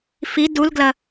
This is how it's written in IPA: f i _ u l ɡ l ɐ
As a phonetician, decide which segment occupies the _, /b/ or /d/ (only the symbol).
d